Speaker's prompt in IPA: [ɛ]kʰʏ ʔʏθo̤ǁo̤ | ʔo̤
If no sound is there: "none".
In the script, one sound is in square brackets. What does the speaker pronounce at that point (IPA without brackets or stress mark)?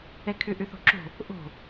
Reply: ɛ